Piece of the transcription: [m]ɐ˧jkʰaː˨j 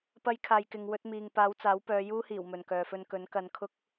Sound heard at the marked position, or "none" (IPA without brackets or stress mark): p